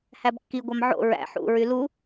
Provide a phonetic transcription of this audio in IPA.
h æ b kː i ɡʷ ɑ m ʕ o̰ ɹ æ̰ ħ ṵ ɹ y l u

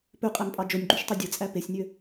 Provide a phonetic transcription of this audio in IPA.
p ø qʼ æ m pʼ ɑ d͡ʒ o nʲ ɡ͡ǃ y ʃ tˤ ø dʲ ɯ t͡sʼ æ p e sʲ nʲ ø

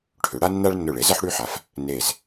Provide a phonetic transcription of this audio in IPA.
ʈʰ ʏ˩˧ ɽ a˦ nː a˦ ɭ nː ʊ˧˩ ɭ e˩˥ z ɐ˦ ħ ɽ y˦ ħ a˩˥ f | n e˧˩ z

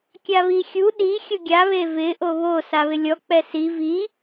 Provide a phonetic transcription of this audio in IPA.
kʲ a β i xʲ u ɗ i xʲ ʊ ɡʲ a β e v ɪ ʔ o β o s a β ɪ lʲ ɔ k͡p ɛ s i v i

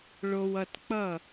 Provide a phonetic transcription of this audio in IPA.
ɭ o˨ w ʌ˨ t k͡p ʌ˦˨

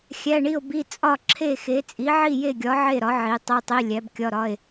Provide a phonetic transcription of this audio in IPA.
xʲ æ˧˥˧ ɳ i˥˨ o̯ b i˧˥˧ t͡sʼ ɒ˥˨ ǁʰ e˥˨ x e˨˥ t͡sʼ i˨˥ ʕ i˥˨ j e˥˨ ɡʲ ɒ˨˥ ʕ e˥˨ ɾ ɒ˨˥ ʕ i˨˥ tˤ e˧˥˧ tˤ i˧˥˧ lʲ æ˨˥ b kʲ ɒ˧˥˧ ɾ ɒ˧˥˧ e̯

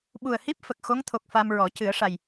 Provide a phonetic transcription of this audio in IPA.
ɓ u˨˩ ə̯ h i˦˥ p̚ f ə˨˩ k̚ x o˧˥ ŋ t̪ʰ o˨˩ k̚ f a˧ m ɹ ɔ˨˩˦ c ɨ˨˩˦ ə̯ ʂ a˨˩ j

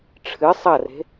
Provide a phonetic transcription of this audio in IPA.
ʈ͡ʂʰ ɨ sˤ ɐ r e̤

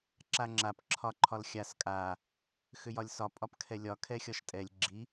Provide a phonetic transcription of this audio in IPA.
ǁ a ŋ͡ǁ a p ǁʰ ɒ ǃʰ ɒ l xʲ a s kʼ a | x ʏ j ɒ lʲ s ɒ pʼ ɒ p kʰ ɛ lʲ ɒ kʰ ɛ xʲ ɒ ʃ tʼ ɛ lʲ ɡ͡ǁ i

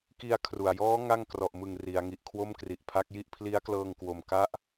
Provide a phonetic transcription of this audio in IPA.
k i˧ a̯ kʰ r u˨˩ a̯ j ɔː˦˥ ŋ a˥˩ ŋ k r ɔ˨˩ ʔ m ɯ˨˩ ŋ r i˩˦ a̯ ŋ i˨˩ ʔ kʰ w o˥˩ m k r i˨˩ ʔ pʰ a˦˥ k̚ j i˥˩ ʔ pʰ l i˦˥ a̯ k l ɤː˧ ŋ k w o˨˩ m k a˦˥ ʔ

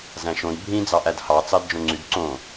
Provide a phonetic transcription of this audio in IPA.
z æ̃ ʃ õ d bʱ ĩ d͡z ɑ ʔ æ d h ɑ t͡s ɑ d d͡ʒ õ ŋ͡ǀ y d ǀ õ

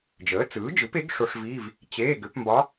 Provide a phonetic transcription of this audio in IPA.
d͡ʒ əː˩˥ t͡s ɯː˩˥ d͡ʒ ɯ˩˥ p e˩˥ ɡ ʂ o˧˥ ʂ v i˧˥˧ v | t͡ɕ eː˧˥˧ ɡ ʏ˩˥ p m b ɒ˧˥

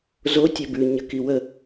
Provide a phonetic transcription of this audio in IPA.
z o tʲ œ b ʉ ɲ ə k i w ə

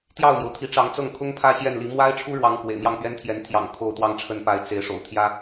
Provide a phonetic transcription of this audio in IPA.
t̪ j ɑ˥˩ ʊ̯ m j o˩ ʊ̯ t̪ʰ i˧˥ ʈ͡ʂ ɑ˧˥ ŋ t͡s ɤ˥˩ ŋ kʰ ʊ˥ ŋ pʰ ä˥˧ ɕ j ɛ˥˩ n l i˧˥ m w a˥ ɪ̯ ʈ͡ʂʰ u˥ ɻ w ɑ˧˥ ŋ k w ḛ˨˩ ɪ̯ m j ɑ˥˩ ŋ p ɥ ɛ˥ n t̪ʰ j ɛ˧˥ n t̪ʰ j ɑ̰˨˩ ŋ kʰ o˥˩ ʊ̯ t̪ w ɑ˥ ŋ ʈ͡ʂʰ ə˥˧ n p a˥˩ ɪ̯ t͡s e˧˥ ɪ̯ ʂ o̰˨˩ ʊ̯ t̪ʰ j ä˥

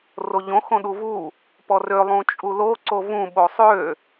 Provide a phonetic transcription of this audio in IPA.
r o ʎ õ x õ ɗ u v u | p ɔ r ø lˠ ũ t͡ʃʼ u l o ǀ o v ũ ɓ o sˤ ø

